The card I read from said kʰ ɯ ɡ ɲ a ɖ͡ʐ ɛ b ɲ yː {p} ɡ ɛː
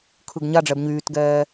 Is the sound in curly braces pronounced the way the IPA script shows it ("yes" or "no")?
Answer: no